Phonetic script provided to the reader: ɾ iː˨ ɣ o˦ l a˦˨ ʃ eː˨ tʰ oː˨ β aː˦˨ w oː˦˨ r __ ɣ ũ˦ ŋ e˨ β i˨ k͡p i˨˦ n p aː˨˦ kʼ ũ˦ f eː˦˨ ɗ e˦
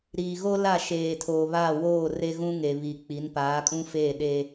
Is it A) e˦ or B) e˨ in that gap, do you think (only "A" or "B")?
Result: A